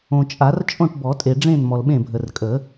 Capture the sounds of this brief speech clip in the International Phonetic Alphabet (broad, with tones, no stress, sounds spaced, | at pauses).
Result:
õ˨ t͡ʃʼ a˨˩˦ r t͡ʃʼ õ˥˩ ʈ b ɔ˨˩˦ tʼ e˨ ɖ͡ʐ ẽ˥˩ n m ɔ˨ l ɓ ẽ˥˩ bʱ ə˨ r kʼ ə˨˩˦